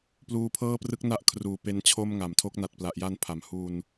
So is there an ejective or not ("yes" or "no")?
no